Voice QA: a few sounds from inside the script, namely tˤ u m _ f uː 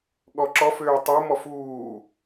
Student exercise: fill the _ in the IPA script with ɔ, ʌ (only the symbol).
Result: ɔ